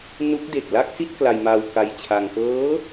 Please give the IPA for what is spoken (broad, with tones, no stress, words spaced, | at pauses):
nu˦˥k̚de˨˩k̚ la˥˩k̚si˥˩t̚ kla˧jmaː˧wka˧jt͡ɕʰa˧ŋ kɤː˦˥